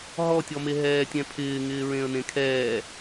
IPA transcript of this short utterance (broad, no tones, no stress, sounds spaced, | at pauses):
ɦ ɔ tʲ ɔ m e ɦ ɛː tʲ ɛ̃ pʰ ɪː ŋ ɪː ɹ ẽ ə̯ n ẽ kʰ ɛː